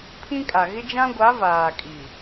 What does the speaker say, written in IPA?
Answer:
pʰ ĩ˦ kʼ a˨ ɣ ɪ˦ d͡ʒ ã˦ ɡʷ a˨˦ v aː˨ kʼ i˨

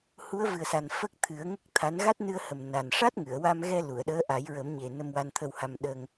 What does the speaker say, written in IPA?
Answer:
h u˧˥ ə̯ v ɨ˨˩ ə̯ s a˨˩ n f ə˦˥ k̚ t̪ʰ ɨ˨˩˦ ə̯ ŋ ə˦˥ k̚ t̪ʰ a˧˥ n ɣ a˦˥ t̚ n ɨ˧ ə̯ h ə˨˩ m n a˨˩ n ʂ a˦˥ t̚ ŋ ɨ˨˩˨ ə̯ w a˧ m ɣ ɛ˧ l u˨˩˨ ə̯ ɗ əː˧˥ ʔ a˨˩˦ j ɹ ə˨˩˦ m ɲ e˨˩ n ə˧ m w a˧ n t̪ʰ ə˧ w h a˧ m ɗ ə˧ ŋ

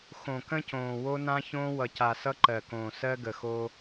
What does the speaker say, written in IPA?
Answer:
x õ˨ k ə̃˦ c õː˨ w o˦ n ã˦ ç õː˦ w ʌ˨ c a˨ s ʌ˦ ǃ ɜ˨ k õː˨ s ɜ˦ ɡ ə˨ x o˦

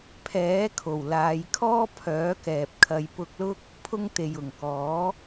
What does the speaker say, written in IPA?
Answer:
pʰ ɛː˨˥ kʰ o˨˩ w l aː˨˧ j kʰ ɔː˥ pʰ œː˨˥ k ɛː˨ p̚ kʰ ɐ˨˧ j p ʊ˧ k̚ l ʊ˥ k̚ | pʰ ʊ˧ ŋ t̪ e˨ j ʊ˨˩ ŋ k ɔː˨˥

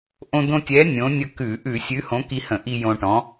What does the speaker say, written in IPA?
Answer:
ʔ õ˧ d̪ õ˧ tʲ ɛ˨˥ nʲ õ˨˥ nʲ ə˧ k ʉ˧˩˧ ʔ ʉ˧˩˧ sʲ ʉ˨˥ h õ˨˥ k i˧ h ə̃˧˩˧ ʔ i˧ j õ˧ ʈ ɔ̃˨˥

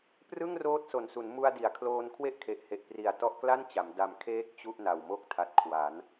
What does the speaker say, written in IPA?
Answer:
p r ɯ˥˩ ŋ r oː˦˥ t̚ s o˨˩ n s u˩˦ n m u˧ a̯ d i˩˦ a̯ kʰ l oː˧ n kʰ w e˥˩ ʔ kʰ e˨˩ ʔ h e˨˩ ʔ p r i˨˩ a̯ t ɔ˦˥ ʔ k l a˥˩ n t͡ɕ a˩˦ m d a˨˩ m kʰ eː˦˥ k̚ t͡ɕ u˥˩ ʔ n a˨˩ w m o˥˩ k̚ tʰ a˨˩ t̚ kʰ w a˩˦ n

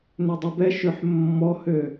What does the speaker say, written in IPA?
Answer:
n ø dˤ u b ɛ ʃ ø ħ mː ɔ h ø

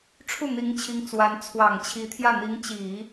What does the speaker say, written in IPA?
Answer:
ʈ͡ʂʰ u˥˩ n̪ i˧˥ ŋ t͡ɕʰ i˧˥ ŋ t͡s w a˧˥ n t͡sʰ w ɑ˨˩ ŋ t͡ɕʰ i˧˥ t̪ʰ j ä˥˩ n̪ i˧˥ ŋ t͡ɕ i˨˩˦

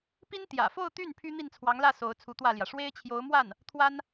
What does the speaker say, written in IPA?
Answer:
p i˥ n t̪ j ä̰˨˩ f o˥˧ ʊ̯ t̪ y˥˩ n pʰ y˥ n̪ i˥˩ n t͡sʰ w ɑ˧˥ ŋ l ä˥˩ s o˧˥ ʊ̯ t͡sʰ u˧˥ t̪ w ä˥˩ l j ä˩ ʂ w e˥ ɪ̯ t͡ɕʰ j o˧˥ ʊ̯ m w a˥˩ n | t̪ʰ w a˥ n

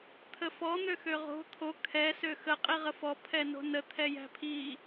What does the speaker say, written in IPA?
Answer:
t̪ʰ ə f ɔ n̪ ø x ø ʁ o̤ t̪ʰ o kʰ ɛ s ø x ə qʼ i ʁ ə f ɔ pʰ ɛ n o̤ n ə t̪ʰ ɛ j æ̤ pʰ i

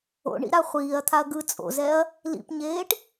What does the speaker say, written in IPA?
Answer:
o̰ ɳ ḭ ɾ a χʷ iː ɐ̯ t̪ʰ a ɐ̯ ɡ ɯ t͡sʼ o̰ z ɛ ɐ̯ | l ḭ p ɲ eː ʈ

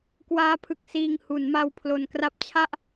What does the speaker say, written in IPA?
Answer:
k w aː˦˥ pʰ ɯ˨˩ k̚ s iː˧ ŋ h u˩˦ n m a˧ w pʰ l o˨˩ n k r a˦˥ p̚ t͡ɕʰ a˥˩ ʔ

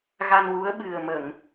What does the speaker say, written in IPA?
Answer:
ɣ a˧ n w u˧˥ ə̯ ɓ ɨ˨˩ ə̯ m ə˨˩˨ ŋ

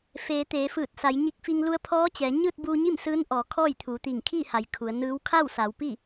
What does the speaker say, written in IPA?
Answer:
f eː˩˧ t̪ eː˩˧ f ɯː˧˩ t̚ s a˩˧ j ɲ i˧ k̚ f i˧ ŋ l u˧ ə̯ pʰ ɔː˧˥ t͡ɕ ɛː˩˧ ɲ ɯː˥˨ t̚ b uː˧ ɲ i˥˨ m s ɯː˧˥ n ʔ ɔː˩˧ kʰ ɔː˥˨ j t̪ʰ uː˩˧ t̪ iː˧˩ ŋ kʰ iː˥˨ h a˩ j kʰ u˩˧ ə̯ n ɯː˧˥ w kʰ a˥˨ w s a˩˧ w p i˥˨

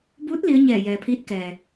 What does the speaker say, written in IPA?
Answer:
b uː˧˥ t̚ l i˧˥ ə̯ ɲ ɛː˧˩ j ɛː˩ pʰ iː˧˥ t̚ k ɛː˩

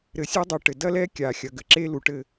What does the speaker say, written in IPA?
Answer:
ɾ ɘ˨ sʲ e˦ dˤ u˨ ʈ ɘ˨ d ɐ˦ l ɛ˦ kʲ aː˨ xʲ ɐ˨ ɡ ɘ˨ ǁ e˦ l u˨ ʈ ɘ˦˨

